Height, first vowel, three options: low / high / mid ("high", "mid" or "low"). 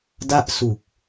low